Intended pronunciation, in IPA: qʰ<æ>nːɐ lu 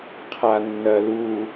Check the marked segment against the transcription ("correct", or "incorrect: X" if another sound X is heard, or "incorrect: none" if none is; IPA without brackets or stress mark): incorrect: a